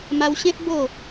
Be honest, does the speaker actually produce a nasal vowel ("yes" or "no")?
yes